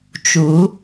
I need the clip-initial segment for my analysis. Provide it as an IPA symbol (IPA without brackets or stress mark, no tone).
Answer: t͡ʃ